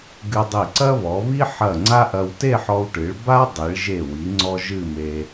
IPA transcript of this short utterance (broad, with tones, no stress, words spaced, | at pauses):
ɡɨ˧dˤi˧˩ ǀɐ˥βɔ˩˧βi˥ ħɐ˧˩ ŋ͡ǀa˥ʔɐ˧w te˥˧ħɔ˧wʈɨ˩˧ɭ ba˥dˤi˩˧ɭ ʒe˧˩wi˩˧ŋ͡ǀɔ˧ ʒɨ˥˧me˧